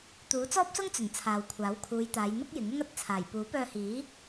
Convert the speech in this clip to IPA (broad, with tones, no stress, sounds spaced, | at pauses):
t̪ uː˨˥ t͡s ɔː˥ p̚ s ʊ˥ ŋ t͡s ɵ˨˩ n t͡sʰ aː˨ w kʷʰ aː˨˥ w kʰ uː˨˧ j t̪ aː˨˧ j n̪ ʊ˥ k̚ j ɪ˨˥ ŋ ʊ˥ ŋ ɐ˨˥ t̚ t͡sʰ aː˨˩ j p uː˨˥ p œː˧ h iː˨˥